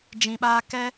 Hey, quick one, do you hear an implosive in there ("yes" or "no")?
yes